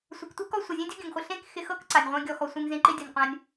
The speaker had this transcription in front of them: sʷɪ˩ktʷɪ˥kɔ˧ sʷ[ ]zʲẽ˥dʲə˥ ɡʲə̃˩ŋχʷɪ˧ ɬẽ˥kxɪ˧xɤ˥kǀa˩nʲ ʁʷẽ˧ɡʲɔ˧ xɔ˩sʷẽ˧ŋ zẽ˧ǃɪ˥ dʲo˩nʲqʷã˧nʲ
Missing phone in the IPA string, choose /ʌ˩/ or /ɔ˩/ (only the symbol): ʌ˩